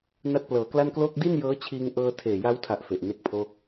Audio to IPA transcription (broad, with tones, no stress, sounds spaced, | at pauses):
n a˦˥ t̚ p l ɤː˩˦ k l a˥˩ n k l oː˥˩ k̚ d i˥˩ n j ɤː˦˥ t͡ɕʰ iː˧ ŋ ʔ ɤː˧ tʰ eː˨˩ j a˦˥ w tʰ a˨˩ ʔ f e˨˩ ʔ n e˦˥ k̚ pʰ oː˥˩ k̚